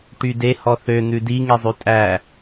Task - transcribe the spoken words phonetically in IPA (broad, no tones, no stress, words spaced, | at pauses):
ʈyde hɔθø n̪ʉdi ŋezˤʉtʼæ